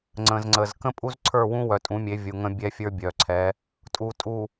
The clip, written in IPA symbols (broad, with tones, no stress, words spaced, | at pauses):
ŋ͡ǀə̃˨zŋ͡ǀə˨z kə̃˦pʼu˦zǀʰə˞˦˨wũ˦ wœ˨tʼũ˨˦mʲe˨˦ vʲu˨ŋə̃˦ bʲɛ˦fʲə˞˦bʲœ˨ǀʰɛ˨˦ | tʼu˨tʼu˨